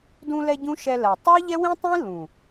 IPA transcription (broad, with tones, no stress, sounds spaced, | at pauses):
d ũ˧ l ɛ˧ ɟ ũ˦ ʃ ɛ˧ l ɜ˨ tˤ ɜ˦ ʎ ɛ˦ w ĩ˦ tˤ ĩ˦ l ũ˨